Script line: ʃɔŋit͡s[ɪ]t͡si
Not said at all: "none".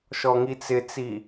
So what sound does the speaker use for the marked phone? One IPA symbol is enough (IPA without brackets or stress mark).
ɪ